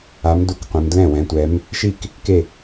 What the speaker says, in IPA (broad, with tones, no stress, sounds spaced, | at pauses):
a˨˦ m d u˨˦ k qʷ ɛ̃˨˦ m d l ɛ̃˥˩ w ɛ̃˨˦ tʷ ɛ˨˦ m | ʃ i˥˩ k | k e˥˩